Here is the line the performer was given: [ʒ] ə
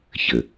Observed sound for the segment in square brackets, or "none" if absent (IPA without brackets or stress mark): ç